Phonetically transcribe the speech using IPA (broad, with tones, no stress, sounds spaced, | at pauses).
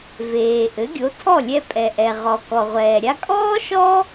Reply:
v eː˩ ʔ ɘ˩˥ ɡʲ o˩˥ tʰ ɔ˥˩ lʲ ɛ˧ pʼ ɛ˩ ʔ ɛ˩ ʁ ɔ˩ k ɔ˩ ʁʷ ɛː˩ ɾʲ a˧ kʼ ɔː˥ ʃ ɔ˥